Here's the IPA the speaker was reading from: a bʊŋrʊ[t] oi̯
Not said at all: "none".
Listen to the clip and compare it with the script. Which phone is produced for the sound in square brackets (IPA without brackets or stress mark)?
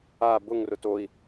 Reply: t